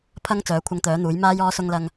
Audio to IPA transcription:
pʰ ɐ˧ ŋ t͡s œː˨˥ kʷʰ ɐ˧ ŋ t̪ œː˨˥ n̪ uː˨˥ j m aː˧ j ɔː˨˧ s ʊ˨ ŋ l ɐ˨ ŋ

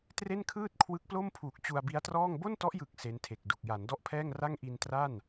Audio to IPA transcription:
t r e˥˩ n kʰ ɯː˥˩ t̚ kʰ w ɯ˦˥ k̚ p l o˥˩ m pʰ uː˨˩ k̚ t͡ɕ u˧ a̯ b i˦˥ a̯ t r ɔː˥˩ ŋ b o˥˩ n t ɔ˦˥ ʔ j ɯ˨˩ k̚ s e˦˥ n tʰ e˨˩ k̚ d u˨˩ k̚ j a˩˦ n d ɔ˥˩ ʔ pʰ ɛː˥˩ ŋ r a˥˩ ŋ ʔ i˧ n t r a˥˩ n

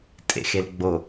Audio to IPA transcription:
tʼ ḛ x e l ɡ͡b o

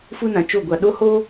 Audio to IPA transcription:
f u˦ n ã˨ t͡ʃ o˦˨ ɡʷ a˨ ɗ o˦ h o˦

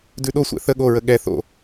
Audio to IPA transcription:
d ʉ ɗ o sʷ ɛ̰ θ ə ɠ o ɹ ə ɠ ɛ θ o̰

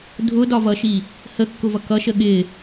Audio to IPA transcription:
dʱ ʊ d ɒ v ʌ ʃ i | h ə kː ʊ v ʌ k ʌ ʃ ə ɠ ɪ

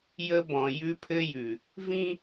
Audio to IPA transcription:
j ə˦ b ɔ̃˨ j ʉ˦ pʰ ɘ˦ j ʉ˨ | v ĩ˦

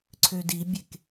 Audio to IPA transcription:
ǀʰ ø d i bʲ e k

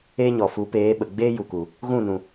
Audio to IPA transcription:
eː˦ ɲ ɔ˨ f u˨˦ p eː˨˦ ɓ ə˨ ɡ͡b eː˦ j u˨ k u˨ | ɣ ũ˦˨ n ũ˨

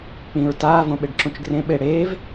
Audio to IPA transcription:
k͡p ĩ ɹ t aː v õ ɓ e ɖ ǁ ũ t͡ʃ ɡ r ẽ ɓ e ɽ eː v

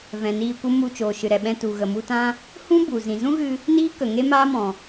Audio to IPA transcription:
v ɛ̃˨ n iː˧ kʷ ə˦ m u˧ t͡ʃ oː˨ ʃ ɨ˨ ɾ ɛ˨ ɓ ɛ̃˧ t u˨ ɣ ə˨ m u˧ t ã˦ | h ũ˦ b u˨ z ĩ˨ z ũ˦ ɣ ɨ˧ | n iː˦ k ə˨ ŋ e˦ m aː˦ m ɔ̃˨

